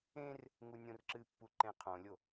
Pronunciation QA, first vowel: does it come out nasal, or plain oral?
nasal